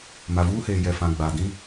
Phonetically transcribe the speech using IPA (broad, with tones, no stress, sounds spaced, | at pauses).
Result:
m a˨ v uː˦ h eː˨ j ɛ˨ f ã˨ ɡ͡b a˨ d ĩ˦